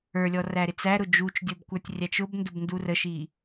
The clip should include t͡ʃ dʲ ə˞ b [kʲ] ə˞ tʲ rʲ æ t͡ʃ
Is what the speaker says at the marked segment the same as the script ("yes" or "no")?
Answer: no